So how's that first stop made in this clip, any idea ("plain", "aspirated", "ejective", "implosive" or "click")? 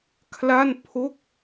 aspirated